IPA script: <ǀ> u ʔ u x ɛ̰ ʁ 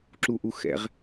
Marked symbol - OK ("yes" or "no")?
no